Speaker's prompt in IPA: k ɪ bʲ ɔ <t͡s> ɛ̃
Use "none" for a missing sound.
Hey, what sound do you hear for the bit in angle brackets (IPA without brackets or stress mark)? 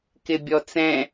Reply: t͡s